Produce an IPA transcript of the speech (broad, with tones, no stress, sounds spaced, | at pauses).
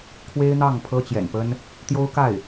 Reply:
kʰ w e˥ ɪ̯ n̪ ɑ˥˩ ŋ pʰ ɤ˥ t͡ɕ j ɛ̰˨˩ n p ə˥ n | t̪ j o˥ ʊ̯ k a˥˩ ɪ̯